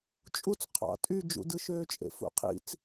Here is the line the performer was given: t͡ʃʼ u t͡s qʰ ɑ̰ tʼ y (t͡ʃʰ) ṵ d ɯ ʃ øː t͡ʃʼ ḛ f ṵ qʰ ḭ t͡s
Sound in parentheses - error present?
yes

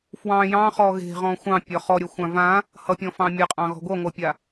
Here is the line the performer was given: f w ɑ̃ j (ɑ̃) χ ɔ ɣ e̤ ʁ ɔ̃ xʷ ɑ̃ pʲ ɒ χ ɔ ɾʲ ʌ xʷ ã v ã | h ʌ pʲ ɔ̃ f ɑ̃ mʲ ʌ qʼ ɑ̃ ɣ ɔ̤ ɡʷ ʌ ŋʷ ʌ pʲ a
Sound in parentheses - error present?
no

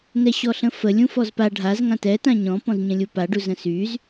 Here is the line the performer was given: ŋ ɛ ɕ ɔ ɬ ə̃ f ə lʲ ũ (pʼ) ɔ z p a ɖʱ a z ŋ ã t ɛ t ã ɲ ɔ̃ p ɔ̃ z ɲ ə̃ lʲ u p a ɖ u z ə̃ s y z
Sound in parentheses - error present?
yes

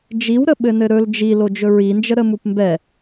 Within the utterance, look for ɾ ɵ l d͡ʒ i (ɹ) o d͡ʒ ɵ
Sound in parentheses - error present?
yes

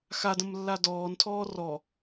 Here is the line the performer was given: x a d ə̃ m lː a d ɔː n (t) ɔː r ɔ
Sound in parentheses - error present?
yes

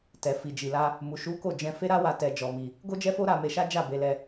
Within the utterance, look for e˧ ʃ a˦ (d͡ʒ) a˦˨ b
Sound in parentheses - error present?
no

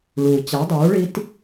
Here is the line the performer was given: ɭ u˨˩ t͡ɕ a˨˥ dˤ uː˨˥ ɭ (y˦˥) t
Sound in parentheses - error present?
yes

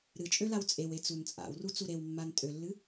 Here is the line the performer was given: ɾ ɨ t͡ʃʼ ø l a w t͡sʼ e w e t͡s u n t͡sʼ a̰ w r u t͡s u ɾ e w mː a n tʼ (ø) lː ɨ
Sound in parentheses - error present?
no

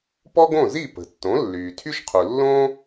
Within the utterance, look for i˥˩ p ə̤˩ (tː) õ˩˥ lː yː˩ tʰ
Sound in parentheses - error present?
no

